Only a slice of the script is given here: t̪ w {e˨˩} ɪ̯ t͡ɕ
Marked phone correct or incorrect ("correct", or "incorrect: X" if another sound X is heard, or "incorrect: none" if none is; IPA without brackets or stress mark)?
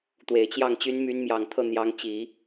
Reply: correct